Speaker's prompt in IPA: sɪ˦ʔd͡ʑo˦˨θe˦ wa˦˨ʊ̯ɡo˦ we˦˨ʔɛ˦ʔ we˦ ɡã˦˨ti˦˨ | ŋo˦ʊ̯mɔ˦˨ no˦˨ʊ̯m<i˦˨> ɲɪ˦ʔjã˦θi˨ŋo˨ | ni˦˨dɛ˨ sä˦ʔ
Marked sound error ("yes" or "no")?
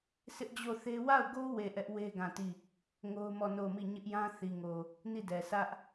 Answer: no